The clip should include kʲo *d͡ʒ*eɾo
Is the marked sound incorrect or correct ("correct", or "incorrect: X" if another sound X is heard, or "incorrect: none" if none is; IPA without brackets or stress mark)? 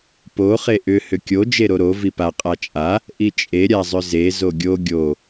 correct